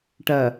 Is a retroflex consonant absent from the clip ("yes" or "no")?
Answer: no